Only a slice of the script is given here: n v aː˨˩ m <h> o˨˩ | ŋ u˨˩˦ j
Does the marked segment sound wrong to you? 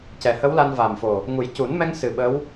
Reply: yes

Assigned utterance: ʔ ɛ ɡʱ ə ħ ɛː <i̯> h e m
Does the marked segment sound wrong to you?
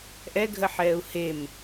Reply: yes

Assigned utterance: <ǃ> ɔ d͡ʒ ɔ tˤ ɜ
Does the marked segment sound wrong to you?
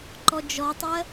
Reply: no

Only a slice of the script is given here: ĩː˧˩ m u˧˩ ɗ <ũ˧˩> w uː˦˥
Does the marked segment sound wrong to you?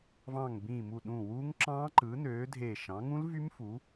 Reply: no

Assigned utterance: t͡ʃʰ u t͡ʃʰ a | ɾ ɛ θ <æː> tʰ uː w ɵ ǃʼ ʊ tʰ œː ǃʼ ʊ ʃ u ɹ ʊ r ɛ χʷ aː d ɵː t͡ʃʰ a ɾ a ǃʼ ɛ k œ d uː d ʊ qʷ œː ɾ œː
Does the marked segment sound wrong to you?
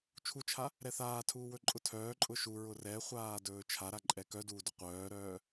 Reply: yes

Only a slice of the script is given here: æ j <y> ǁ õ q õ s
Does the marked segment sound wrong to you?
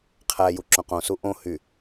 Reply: yes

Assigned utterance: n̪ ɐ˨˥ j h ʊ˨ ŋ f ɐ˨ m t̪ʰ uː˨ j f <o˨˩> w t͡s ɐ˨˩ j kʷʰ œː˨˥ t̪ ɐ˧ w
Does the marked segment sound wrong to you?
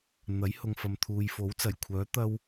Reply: yes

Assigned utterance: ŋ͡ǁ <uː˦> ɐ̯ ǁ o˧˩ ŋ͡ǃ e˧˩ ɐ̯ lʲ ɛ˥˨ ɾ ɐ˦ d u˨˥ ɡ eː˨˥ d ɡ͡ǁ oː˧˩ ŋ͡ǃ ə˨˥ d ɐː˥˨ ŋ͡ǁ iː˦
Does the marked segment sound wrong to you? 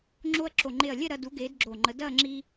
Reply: yes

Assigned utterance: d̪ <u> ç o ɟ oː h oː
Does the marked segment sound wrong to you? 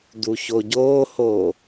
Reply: no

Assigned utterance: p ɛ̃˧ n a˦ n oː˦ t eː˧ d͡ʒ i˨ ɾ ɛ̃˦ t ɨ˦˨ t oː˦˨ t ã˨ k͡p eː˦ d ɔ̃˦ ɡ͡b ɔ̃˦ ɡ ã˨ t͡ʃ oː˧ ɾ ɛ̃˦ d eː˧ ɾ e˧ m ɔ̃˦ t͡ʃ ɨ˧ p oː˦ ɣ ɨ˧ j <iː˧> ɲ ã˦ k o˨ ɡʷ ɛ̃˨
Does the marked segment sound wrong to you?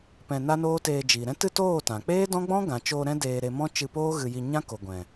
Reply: yes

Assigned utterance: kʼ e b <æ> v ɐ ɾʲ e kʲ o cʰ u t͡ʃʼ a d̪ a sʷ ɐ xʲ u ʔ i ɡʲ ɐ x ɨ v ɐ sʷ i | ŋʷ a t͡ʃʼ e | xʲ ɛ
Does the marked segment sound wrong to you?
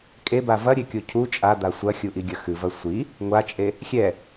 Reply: yes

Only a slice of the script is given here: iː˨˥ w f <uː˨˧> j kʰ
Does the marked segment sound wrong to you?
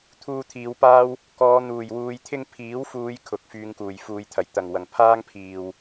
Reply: no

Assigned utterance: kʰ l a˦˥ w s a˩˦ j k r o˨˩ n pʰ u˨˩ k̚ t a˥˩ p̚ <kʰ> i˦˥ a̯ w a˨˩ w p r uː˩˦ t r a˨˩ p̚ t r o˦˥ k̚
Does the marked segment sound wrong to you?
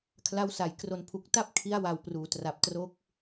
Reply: no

